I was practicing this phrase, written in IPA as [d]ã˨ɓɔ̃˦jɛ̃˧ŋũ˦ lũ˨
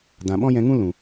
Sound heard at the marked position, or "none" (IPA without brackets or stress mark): d